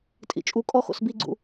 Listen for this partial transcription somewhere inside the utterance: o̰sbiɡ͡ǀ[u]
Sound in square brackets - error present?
yes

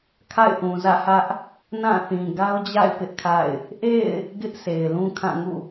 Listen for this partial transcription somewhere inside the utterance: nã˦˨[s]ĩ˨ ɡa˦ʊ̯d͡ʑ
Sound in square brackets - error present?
yes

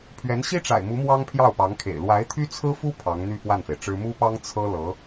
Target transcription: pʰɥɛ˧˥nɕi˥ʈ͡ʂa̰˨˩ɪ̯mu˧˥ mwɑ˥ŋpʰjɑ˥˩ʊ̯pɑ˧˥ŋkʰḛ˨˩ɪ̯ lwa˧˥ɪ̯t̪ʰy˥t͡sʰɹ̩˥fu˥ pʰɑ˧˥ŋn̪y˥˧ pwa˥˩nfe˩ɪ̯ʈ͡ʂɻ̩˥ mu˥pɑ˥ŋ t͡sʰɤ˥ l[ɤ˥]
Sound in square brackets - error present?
yes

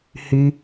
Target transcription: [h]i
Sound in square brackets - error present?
no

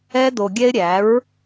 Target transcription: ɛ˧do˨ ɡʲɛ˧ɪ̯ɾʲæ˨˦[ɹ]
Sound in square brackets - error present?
no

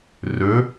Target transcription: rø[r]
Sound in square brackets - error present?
yes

